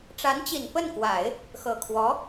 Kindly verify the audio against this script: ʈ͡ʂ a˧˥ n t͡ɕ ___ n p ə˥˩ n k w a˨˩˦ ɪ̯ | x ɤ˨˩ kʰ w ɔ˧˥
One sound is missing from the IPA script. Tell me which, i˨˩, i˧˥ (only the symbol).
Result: i˨˩